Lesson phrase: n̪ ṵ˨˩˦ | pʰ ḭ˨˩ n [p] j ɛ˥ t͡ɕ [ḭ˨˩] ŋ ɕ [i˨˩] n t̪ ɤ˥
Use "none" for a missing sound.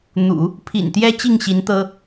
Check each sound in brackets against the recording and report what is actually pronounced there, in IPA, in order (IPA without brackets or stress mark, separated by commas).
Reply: t̪, i˥˩, i˧˥